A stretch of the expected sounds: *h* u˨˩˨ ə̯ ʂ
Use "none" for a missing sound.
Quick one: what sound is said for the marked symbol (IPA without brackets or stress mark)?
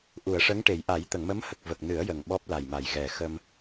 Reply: ʔ